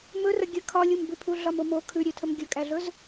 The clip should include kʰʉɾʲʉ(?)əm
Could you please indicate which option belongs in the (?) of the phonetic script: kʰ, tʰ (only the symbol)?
tʰ